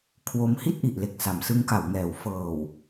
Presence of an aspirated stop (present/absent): present